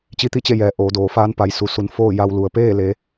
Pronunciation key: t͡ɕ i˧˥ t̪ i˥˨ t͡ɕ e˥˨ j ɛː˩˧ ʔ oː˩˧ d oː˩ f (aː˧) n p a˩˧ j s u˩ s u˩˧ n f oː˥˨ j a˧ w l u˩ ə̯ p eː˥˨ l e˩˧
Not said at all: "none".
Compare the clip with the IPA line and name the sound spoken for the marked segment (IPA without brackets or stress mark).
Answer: aː˧˥